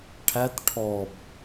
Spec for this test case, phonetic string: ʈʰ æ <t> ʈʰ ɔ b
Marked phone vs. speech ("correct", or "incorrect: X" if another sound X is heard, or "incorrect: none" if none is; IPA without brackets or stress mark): correct